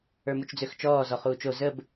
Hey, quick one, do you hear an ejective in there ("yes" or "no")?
no